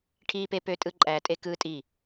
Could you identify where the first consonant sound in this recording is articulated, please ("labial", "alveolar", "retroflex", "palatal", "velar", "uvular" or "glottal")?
retroflex